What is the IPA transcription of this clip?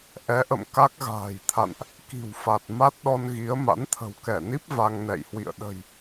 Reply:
ʔ ɛ˨˦ ʔ ə̰˧˨ m k a˦˥ k̚ ɣ a̤ː˨˩ j t̪ʰ a̰˧˨ n ʔ | k i̤˨˩ w f a˨˩ t̚ m a˦˥ t̚ ɗ ɔ˧ n ɣ i˨˦ ə̯ m a̰˧˥ n t̪ʰ ə̤˨˩ w k ɛ˧˩ n i˦˥ p̚ v a˧ ŋ n ɛ̰˧˨ j h w ḭ˧˨ ə̯ ɗ ə̤˨˩ j

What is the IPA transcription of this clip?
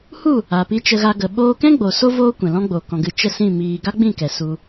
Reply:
h u˦˨ | a˨ p i˧ t͡ʃ ə˧ ɣ a˧ ɡ ə˨ ɓ oː˧ k ɛ̃˦ ɡ͡b o˨ s o˦ v oː˦ kʷ ɛ̃˨ l ɔ̃˦ ɡ͡b o˨ k ɔ̃˧ ɡ ɨ˦˨ t͡ʃ ə˦˨ s ĩ˦˨ m iː˧ ɡ a˦ ɡ͡b ĩ˦˨ k ɛ˨ s u˧

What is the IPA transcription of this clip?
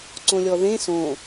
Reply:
ǀ õ lʲ ɔ ð ẽ s õ

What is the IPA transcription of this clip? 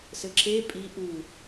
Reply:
s ɘ ǁ e pʼ i ʔ u

